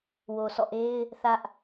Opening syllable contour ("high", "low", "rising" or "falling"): low